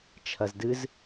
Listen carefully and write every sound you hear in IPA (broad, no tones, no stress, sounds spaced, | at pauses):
t͡ʃʰ ɐ z d ɨ z